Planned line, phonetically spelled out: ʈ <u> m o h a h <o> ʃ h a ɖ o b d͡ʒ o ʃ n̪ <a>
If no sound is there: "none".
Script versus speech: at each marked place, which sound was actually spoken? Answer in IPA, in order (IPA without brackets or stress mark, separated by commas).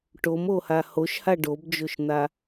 o, o, a